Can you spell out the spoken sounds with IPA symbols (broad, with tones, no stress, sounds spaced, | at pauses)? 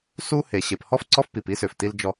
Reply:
s u˦ h e˨ ɕ e˨ p h ɔ˦ f ǀ ɔ˦ f p i˨ p i˦ s ʏ˨ f t i˦ l d͡ʒ ɔ˦